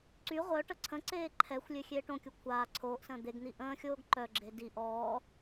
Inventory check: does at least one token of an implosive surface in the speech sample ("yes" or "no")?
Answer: no